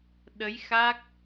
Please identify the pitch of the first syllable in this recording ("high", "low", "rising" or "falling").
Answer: rising